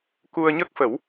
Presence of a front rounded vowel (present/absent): absent